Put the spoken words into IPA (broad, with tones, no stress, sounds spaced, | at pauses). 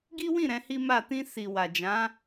ɡ i˦ w ĩ˦˨ ɾ ɛ̃˨˦ h i˦ m a˦˨ t ĩ˧ s i˨ w a˨ d͡ʒ ã˨˦